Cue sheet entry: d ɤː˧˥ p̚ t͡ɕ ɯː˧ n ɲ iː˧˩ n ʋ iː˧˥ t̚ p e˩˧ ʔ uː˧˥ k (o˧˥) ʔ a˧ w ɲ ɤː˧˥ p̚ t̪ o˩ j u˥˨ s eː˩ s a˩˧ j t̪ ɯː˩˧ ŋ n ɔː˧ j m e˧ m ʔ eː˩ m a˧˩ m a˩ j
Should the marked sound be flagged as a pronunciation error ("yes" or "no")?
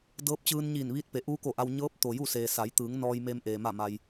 yes